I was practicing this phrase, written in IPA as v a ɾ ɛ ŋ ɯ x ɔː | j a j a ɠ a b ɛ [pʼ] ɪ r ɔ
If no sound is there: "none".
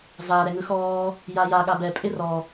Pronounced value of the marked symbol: pʼ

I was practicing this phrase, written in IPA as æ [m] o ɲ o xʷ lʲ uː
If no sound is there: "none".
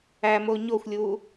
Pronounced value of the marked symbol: m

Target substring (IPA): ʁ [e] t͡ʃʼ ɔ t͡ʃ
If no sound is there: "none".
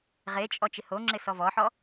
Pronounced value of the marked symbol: e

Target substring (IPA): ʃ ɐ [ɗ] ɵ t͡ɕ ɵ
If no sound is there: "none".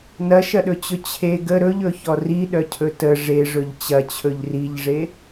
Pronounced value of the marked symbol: ɗ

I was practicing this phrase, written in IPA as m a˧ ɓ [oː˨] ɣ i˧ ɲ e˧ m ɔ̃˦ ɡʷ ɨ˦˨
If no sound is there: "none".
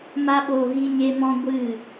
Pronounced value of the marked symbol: oː˨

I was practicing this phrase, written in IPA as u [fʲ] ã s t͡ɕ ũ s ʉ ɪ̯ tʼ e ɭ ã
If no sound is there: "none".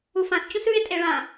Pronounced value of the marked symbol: f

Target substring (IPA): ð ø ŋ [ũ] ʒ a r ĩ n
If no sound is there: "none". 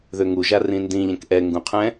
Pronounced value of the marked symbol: u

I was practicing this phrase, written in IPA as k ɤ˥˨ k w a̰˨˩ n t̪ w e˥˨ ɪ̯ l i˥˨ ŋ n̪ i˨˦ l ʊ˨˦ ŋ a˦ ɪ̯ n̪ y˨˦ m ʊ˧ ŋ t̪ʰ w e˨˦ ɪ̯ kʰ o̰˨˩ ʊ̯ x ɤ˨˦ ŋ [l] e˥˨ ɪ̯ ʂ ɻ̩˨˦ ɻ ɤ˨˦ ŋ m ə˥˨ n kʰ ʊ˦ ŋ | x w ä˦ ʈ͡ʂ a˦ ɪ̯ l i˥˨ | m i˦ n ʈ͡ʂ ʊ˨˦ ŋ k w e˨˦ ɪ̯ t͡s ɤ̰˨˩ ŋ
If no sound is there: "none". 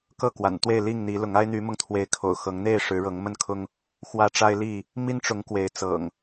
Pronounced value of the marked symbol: n̪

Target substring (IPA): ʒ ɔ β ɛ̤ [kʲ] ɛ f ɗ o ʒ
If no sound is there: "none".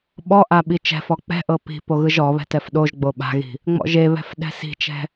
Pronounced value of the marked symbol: t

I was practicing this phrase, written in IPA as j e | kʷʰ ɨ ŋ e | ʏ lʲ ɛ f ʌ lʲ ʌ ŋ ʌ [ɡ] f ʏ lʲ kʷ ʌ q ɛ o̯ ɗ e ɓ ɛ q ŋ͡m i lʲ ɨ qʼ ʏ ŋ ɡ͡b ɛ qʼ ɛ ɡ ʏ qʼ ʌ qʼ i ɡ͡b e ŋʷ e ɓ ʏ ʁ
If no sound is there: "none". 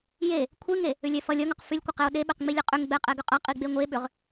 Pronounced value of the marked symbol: q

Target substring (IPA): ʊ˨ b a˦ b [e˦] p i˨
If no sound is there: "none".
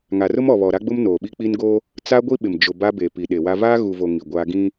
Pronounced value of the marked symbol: e˨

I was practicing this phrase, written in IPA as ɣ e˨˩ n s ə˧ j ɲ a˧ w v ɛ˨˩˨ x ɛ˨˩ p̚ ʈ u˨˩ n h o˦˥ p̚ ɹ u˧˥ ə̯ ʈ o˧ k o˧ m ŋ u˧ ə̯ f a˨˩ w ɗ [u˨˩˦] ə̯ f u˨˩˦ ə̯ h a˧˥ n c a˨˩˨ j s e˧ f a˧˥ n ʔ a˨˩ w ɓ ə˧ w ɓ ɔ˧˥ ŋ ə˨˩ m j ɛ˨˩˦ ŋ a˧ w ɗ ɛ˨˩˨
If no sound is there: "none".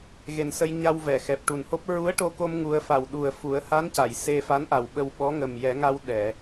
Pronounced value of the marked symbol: u˨˩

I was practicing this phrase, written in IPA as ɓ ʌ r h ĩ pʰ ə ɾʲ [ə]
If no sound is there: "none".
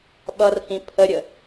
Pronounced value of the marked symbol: ə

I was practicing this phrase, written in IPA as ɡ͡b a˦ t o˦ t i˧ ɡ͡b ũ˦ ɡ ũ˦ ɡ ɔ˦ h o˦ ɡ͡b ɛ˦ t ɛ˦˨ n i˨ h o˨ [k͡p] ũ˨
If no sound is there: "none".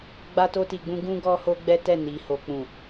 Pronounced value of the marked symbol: k͡p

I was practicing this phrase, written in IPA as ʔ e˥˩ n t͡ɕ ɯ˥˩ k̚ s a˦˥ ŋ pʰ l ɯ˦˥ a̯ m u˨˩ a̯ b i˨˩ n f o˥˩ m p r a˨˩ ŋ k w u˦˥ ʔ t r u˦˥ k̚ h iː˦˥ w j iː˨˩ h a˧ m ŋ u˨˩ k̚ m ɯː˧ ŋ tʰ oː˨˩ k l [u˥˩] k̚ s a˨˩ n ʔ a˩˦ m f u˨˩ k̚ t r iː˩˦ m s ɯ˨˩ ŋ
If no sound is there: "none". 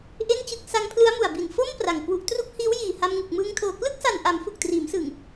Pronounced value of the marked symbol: ɯ˥˩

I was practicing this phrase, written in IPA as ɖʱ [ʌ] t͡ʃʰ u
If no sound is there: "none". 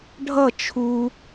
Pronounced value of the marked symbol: ʌ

